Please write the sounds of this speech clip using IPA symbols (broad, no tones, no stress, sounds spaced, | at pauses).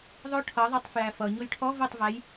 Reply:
ðˤ ʊ ʈʰ ʌ ðˤ ʌ tˤ f j æ f ʌ ɲ ʊ j ʈʰ ɔ v ʊ tˤ v æ j